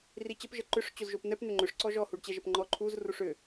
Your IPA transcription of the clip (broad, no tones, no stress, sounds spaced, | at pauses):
r i t͡ɕ ə p ʒ ə ǃ ʏ ʂ t͡ɕ o z ʒ o p n̪ ɛ p n̪ ʏ ŋ͡ǃ ʏ ʂ ǀ ɔ ʒ ɔ h u ɖ t͡ɕ ɛ ʒ ə p ŋ͡ǃ ɔ ǃʰ u z r u ʂ ʏ